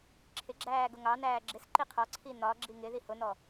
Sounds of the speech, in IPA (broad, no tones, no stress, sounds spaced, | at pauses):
ǁʰ ɪ ɡ͡ǁ æː ɡ ʊ ŋ ɑ n æː ɡ͡ǁ ɪ s ǃ i qʰ ɒ ǀʰ i n ɒ ɡ͡ǁ i ŋ ɪ ð i h ʊ n ɔ